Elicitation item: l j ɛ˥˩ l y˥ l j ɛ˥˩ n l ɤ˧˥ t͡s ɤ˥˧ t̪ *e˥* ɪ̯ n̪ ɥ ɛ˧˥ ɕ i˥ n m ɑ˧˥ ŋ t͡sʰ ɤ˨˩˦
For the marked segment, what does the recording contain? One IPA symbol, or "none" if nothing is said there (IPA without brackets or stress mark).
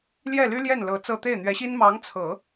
e˥˩